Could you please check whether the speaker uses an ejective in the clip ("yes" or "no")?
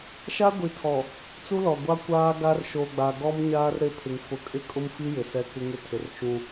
yes